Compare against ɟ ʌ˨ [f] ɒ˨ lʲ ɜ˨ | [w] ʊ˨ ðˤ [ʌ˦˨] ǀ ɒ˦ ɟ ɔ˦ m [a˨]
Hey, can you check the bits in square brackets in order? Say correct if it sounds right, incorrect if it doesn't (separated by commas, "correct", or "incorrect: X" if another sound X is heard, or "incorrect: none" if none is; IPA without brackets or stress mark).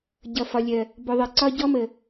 correct, incorrect: b, incorrect: ʌ˨, incorrect: ə˨